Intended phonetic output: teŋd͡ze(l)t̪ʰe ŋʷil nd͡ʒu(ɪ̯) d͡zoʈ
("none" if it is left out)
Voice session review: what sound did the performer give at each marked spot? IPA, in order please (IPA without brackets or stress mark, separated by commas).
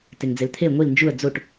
l, ə̯